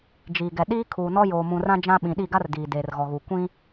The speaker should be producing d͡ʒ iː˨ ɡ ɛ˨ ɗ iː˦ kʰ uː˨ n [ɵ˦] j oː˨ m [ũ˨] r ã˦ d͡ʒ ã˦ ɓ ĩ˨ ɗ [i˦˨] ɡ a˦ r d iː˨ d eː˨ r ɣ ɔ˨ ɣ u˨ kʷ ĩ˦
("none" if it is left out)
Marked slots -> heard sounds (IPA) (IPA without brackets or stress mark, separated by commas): ɔ˦, ũ˨, i˦˨